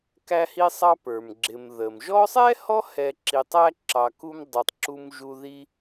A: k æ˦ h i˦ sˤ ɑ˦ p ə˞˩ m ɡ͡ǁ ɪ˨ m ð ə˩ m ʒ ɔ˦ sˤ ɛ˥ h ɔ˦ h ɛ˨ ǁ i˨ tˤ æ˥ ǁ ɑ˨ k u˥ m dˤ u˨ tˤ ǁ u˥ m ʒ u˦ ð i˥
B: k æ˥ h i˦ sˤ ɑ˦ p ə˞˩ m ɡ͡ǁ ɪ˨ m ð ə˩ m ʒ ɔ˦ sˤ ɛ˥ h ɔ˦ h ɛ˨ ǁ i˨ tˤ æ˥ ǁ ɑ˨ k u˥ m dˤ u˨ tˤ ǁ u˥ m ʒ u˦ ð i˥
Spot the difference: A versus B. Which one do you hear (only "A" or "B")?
A